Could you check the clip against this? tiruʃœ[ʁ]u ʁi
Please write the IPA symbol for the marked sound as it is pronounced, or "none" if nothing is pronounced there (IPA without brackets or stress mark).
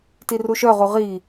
ʁ